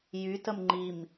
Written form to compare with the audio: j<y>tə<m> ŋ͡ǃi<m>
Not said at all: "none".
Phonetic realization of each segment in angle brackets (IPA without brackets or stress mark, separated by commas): y, m, m